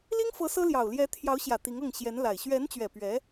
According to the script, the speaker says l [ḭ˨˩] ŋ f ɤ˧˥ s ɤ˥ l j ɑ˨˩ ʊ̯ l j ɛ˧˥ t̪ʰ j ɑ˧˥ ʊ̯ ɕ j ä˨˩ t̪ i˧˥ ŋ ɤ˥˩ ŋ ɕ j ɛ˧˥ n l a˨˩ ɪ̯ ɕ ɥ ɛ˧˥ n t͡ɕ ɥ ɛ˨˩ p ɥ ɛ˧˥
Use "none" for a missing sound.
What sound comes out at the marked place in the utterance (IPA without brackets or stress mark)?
i˥